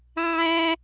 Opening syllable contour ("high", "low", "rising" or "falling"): low